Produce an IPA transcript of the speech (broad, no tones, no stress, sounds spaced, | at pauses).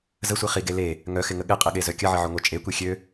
z ə sʷ i χ i ɡ e l e | ŋ œ x ɪ ŋ ə ɠ ɪ qʼ ɪ ɠ e z œ kʲ ə ʕ ə ʕ ʊ ŋʷ œ t͡ʃʼ e kʷ i xʲ ø